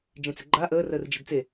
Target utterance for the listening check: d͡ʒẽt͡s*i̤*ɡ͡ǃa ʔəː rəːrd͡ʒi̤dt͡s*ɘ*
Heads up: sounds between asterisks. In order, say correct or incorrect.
incorrect, incorrect

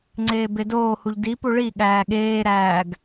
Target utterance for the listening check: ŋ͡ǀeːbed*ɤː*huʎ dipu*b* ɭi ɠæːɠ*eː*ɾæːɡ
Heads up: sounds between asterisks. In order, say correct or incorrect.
incorrect, incorrect, correct

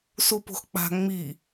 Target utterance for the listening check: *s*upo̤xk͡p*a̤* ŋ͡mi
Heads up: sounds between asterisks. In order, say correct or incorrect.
correct, correct

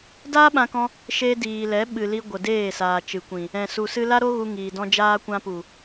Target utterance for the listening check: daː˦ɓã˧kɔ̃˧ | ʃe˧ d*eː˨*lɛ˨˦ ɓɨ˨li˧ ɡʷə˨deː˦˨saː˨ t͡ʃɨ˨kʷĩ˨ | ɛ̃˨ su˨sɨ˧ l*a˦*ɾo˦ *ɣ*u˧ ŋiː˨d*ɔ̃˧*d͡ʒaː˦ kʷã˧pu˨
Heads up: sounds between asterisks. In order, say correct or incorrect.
incorrect, correct, correct, correct

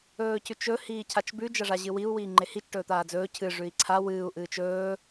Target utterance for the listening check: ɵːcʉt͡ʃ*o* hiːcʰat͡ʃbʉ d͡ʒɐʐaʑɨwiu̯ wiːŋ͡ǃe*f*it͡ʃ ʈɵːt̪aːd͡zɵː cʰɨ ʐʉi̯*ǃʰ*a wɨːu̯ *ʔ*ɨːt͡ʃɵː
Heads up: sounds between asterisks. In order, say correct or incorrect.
incorrect, incorrect, incorrect, correct

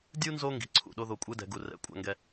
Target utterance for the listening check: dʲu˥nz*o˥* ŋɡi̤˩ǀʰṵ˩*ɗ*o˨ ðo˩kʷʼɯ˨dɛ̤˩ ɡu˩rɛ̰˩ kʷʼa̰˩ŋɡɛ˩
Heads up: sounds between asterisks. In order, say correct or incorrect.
incorrect, correct

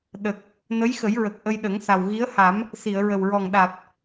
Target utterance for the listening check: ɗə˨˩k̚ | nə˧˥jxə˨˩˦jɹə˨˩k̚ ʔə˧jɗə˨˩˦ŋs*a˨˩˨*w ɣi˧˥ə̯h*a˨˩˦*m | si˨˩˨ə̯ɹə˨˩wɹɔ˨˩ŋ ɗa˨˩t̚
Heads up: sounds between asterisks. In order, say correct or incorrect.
incorrect, correct

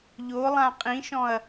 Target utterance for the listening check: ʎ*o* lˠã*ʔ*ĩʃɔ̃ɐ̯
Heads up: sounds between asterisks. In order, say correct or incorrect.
correct, incorrect

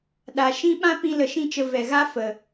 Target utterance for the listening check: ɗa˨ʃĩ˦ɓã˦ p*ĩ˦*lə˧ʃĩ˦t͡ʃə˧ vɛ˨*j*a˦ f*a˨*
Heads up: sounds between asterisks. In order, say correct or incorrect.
correct, incorrect, incorrect

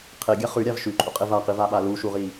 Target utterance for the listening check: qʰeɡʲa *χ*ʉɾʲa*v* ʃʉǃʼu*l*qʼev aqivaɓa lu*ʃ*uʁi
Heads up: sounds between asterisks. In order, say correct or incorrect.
correct, correct, incorrect, correct

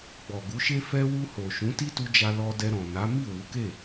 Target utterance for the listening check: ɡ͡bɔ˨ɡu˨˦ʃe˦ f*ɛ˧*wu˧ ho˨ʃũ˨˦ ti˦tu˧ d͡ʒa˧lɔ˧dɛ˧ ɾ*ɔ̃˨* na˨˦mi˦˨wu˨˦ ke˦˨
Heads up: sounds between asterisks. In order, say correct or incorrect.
correct, correct

